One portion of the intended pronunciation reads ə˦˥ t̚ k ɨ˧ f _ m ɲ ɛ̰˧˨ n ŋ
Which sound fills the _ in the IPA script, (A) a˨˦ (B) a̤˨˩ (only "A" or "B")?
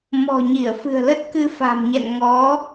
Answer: B